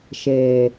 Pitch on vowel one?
low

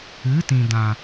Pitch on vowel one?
rising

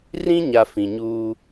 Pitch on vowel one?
high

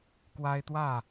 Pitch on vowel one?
high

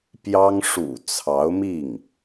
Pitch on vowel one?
high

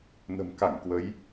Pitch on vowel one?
low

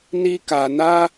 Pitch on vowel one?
high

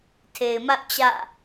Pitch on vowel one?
low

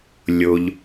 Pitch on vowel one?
low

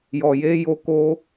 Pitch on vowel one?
low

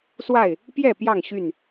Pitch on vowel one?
falling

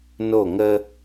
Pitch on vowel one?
falling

